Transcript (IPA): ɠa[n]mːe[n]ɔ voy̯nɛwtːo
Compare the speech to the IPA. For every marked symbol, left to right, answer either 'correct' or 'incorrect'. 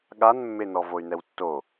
correct, correct

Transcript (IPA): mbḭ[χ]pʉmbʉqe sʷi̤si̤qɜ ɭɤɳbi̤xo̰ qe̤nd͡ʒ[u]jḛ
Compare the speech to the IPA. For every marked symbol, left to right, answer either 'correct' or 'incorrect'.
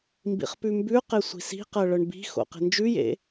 correct, incorrect: ʉ

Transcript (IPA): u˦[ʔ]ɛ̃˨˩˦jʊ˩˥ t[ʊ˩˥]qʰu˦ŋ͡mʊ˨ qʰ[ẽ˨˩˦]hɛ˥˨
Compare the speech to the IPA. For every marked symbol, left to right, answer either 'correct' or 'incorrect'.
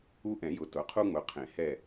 correct, correct, correct

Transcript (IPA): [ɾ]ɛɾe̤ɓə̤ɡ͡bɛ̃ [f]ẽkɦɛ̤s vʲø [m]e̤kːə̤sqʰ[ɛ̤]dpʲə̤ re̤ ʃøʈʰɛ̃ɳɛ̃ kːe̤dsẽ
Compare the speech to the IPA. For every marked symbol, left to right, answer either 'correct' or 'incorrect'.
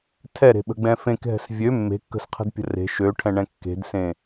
incorrect: tʰ, correct, incorrect: mː, incorrect: ə̤

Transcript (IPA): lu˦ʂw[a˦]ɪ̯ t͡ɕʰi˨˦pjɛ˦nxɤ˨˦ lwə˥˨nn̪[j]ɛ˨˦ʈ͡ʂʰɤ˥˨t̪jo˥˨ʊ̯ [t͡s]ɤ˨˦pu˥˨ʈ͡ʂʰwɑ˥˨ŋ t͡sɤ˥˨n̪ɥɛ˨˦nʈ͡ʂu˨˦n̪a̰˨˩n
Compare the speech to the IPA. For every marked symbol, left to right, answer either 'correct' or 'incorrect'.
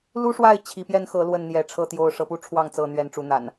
incorrect: a˥˨, correct, incorrect: ʂ

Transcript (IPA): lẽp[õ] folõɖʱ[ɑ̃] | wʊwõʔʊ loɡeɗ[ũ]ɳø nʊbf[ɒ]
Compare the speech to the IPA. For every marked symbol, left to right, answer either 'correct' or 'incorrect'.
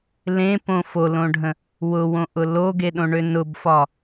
correct, incorrect: ə̃, incorrect: õ, correct

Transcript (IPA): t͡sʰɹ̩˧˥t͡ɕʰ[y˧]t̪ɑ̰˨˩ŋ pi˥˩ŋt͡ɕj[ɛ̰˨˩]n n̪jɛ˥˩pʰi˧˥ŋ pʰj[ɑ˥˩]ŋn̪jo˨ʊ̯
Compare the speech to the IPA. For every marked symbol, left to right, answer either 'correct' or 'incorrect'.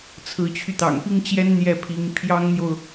correct, incorrect: ɛ˥, incorrect: ɑ˥

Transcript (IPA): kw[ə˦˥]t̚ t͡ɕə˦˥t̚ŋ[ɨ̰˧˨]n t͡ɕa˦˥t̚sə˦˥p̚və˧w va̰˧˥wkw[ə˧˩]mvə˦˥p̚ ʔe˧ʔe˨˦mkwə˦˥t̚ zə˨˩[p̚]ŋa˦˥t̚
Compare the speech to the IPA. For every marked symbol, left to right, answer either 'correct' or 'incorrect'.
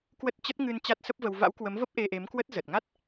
correct, incorrect: ɨ˧, incorrect: ə˨˦, incorrect: t̚

